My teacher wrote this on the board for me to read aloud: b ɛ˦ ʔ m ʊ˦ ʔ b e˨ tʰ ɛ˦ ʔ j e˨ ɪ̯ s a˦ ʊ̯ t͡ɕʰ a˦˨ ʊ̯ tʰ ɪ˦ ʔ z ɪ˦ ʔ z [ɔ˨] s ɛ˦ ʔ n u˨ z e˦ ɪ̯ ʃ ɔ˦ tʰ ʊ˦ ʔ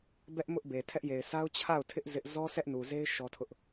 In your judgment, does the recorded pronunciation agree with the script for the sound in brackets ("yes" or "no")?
no